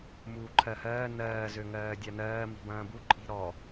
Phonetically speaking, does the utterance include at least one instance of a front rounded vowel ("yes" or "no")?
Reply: yes